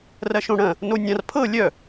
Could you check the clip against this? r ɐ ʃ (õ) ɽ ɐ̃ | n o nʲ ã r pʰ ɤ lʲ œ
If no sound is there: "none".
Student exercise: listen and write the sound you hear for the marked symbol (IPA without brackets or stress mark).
õ